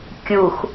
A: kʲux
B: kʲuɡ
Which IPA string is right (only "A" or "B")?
A